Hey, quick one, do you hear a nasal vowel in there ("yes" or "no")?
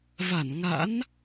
no